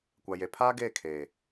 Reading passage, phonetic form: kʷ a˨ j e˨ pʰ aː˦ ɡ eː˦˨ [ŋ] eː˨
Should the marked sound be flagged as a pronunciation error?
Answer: yes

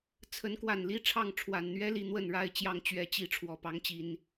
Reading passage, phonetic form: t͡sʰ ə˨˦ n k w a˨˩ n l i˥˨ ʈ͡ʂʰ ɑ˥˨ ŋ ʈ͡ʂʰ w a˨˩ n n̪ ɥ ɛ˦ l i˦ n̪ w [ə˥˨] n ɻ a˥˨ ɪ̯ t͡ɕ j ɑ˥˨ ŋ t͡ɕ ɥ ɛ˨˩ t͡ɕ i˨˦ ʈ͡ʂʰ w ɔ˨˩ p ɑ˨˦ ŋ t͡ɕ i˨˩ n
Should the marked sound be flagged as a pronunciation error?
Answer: no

